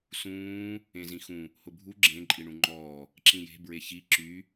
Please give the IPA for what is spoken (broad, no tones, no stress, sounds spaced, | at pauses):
s ũː | ẽ z ĩ x ũ | h ʊ bʱ u ɡ͡ǁ ẽ ǃʼ i ɳ ũ ŋ͡ǃ ɔː | ǁ ĩ j e̤ b ɹ e ç i ǁ y